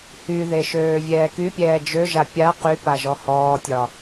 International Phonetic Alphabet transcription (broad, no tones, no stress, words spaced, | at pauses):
hyðe ʃøːvʲɛːkypʲɛː d͡ʒøʒa pʲa qy paʒɔhɔːtʲɒ